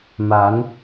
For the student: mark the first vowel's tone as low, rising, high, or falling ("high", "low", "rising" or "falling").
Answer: rising